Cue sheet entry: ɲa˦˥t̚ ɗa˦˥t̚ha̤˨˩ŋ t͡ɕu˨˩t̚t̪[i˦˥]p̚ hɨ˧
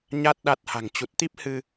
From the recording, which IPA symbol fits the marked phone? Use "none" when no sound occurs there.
i˦˥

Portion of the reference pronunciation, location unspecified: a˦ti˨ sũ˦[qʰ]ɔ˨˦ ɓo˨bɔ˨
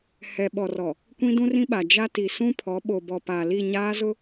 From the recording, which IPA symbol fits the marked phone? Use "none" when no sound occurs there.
pʰ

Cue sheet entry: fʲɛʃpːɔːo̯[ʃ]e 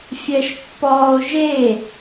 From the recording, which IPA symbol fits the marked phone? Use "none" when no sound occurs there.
ʒ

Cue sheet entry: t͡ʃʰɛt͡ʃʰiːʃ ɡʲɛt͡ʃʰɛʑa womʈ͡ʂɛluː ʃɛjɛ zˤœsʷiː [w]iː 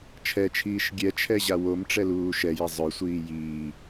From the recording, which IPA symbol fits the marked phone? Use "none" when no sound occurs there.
j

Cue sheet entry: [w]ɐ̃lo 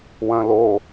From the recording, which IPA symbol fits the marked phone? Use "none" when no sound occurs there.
w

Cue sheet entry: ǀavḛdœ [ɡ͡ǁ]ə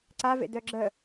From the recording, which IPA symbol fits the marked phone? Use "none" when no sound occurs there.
ɡ͡ǁ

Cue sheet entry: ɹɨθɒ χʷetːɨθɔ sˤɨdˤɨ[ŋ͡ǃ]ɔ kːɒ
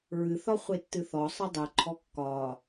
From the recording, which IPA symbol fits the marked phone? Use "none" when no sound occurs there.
ǃʰ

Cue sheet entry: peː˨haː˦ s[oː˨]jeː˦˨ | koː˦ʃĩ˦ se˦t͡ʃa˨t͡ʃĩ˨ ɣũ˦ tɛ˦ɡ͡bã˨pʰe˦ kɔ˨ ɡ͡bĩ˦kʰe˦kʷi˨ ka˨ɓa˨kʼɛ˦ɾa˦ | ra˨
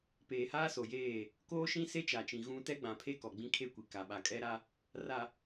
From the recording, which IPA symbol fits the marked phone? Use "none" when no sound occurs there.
o˨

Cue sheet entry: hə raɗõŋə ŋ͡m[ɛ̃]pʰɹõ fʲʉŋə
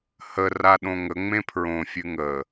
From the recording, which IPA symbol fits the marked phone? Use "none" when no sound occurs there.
ẽ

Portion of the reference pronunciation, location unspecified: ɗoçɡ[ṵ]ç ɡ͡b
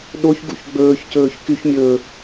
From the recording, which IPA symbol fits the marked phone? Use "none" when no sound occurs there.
ṵ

